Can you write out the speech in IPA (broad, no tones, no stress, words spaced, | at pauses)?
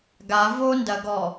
ɡa vondɐɡɔ